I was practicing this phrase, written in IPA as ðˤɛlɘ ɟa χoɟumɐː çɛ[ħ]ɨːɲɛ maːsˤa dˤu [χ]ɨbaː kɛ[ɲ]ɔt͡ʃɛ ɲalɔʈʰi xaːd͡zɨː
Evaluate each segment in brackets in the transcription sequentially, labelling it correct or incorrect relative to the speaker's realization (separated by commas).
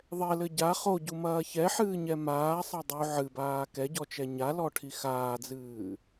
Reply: correct, incorrect, incorrect